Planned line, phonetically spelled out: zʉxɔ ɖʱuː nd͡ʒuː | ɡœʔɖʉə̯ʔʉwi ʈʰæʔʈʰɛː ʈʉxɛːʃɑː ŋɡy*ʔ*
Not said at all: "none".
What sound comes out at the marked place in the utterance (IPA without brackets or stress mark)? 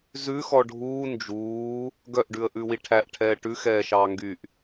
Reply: ʔ